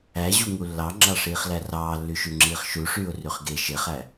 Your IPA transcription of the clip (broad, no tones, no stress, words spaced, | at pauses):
æʑuŋu lːɑŋ͡ǁɑʂiːχlæ rɑːlːyʃyŋ͡ǁiːχ ʃuʂyːʊ̯ryχ ɡe ʃeχæ